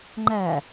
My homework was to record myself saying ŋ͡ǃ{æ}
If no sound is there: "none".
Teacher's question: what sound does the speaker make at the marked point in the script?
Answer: æ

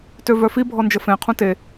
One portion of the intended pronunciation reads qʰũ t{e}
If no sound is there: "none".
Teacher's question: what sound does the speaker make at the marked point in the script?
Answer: e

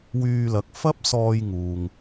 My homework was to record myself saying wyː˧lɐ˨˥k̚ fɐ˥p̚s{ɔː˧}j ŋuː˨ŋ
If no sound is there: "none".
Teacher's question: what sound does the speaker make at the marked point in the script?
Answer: ɔː˧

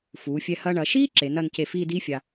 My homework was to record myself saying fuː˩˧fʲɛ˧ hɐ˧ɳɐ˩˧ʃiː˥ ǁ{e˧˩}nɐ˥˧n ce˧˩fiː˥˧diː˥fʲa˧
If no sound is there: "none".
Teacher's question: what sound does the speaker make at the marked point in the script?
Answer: e˩˧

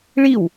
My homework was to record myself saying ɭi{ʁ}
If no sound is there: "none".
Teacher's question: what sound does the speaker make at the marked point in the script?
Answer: w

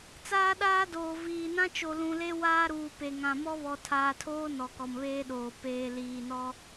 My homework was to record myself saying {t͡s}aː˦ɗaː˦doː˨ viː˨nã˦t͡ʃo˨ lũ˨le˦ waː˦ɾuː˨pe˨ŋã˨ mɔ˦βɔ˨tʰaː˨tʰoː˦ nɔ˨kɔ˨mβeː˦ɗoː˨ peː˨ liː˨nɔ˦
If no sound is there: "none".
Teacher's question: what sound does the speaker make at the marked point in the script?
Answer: t͡s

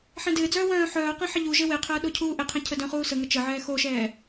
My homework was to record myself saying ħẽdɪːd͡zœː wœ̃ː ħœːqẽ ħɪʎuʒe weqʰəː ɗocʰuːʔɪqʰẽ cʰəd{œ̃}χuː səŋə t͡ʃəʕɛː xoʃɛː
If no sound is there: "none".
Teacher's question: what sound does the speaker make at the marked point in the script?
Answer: œ̃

